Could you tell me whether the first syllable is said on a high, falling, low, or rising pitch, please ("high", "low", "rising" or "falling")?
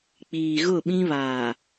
low